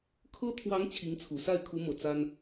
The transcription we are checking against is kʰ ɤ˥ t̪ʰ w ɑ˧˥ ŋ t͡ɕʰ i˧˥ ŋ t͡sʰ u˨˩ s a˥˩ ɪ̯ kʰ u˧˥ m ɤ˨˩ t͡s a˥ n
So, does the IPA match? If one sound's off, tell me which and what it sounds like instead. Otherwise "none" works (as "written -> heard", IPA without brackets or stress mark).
none